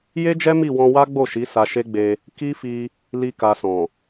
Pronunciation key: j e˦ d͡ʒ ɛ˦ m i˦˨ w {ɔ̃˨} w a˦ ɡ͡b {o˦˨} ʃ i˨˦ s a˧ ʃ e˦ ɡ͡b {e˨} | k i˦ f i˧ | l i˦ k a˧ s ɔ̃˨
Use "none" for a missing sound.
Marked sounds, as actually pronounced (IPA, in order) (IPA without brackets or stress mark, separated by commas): ɔ̃˧, o˦˨, e˧